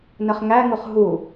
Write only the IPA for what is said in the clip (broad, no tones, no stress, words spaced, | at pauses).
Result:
nəχŋæŋuχ ɦu